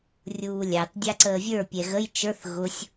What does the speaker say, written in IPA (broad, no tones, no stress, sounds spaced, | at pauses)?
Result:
rʲ uː lʲ ɑ t dʲ ɑ ǀ əː vʲ ə˞ pʲ ɛ ɣ ə j t͡ʃ ə˞ θ ɣ ʊ sʲ